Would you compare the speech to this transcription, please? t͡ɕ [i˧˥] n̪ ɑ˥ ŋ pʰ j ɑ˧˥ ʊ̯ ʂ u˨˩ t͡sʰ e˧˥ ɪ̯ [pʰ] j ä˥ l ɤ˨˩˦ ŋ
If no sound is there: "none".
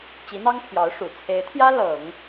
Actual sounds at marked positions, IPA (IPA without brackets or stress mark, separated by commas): i˧˥, t̪ʰ